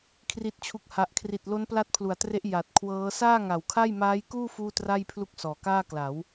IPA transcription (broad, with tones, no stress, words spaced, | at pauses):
kʰri˨˩t̚t͡ɕʰu˨˩k̚ha˨˩ʔkʰri˨˩t̚ lo˦˥npla˦˥t̚pʰlu˩˦a̯tre˦˥ʔ ja˨˩t̚kʰwɤː˦˥ saː˥˩ŋa˨˩wkʰa˥˩j maː˦˥jkuː˥˩ fuː˥˩tra˥˩jpʰlu˥˩k̚ sɔː˨˩kaː˥˩kla˩˦w